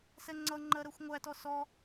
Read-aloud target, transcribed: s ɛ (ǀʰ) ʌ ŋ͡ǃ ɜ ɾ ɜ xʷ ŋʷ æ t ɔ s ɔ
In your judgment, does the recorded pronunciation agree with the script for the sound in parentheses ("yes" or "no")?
no